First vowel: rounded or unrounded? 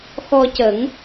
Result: rounded